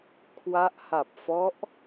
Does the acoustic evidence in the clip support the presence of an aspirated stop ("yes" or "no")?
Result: yes